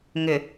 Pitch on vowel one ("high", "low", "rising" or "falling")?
low